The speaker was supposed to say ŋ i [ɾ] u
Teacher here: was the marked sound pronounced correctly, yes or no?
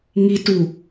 no